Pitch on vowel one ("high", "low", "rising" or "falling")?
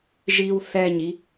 high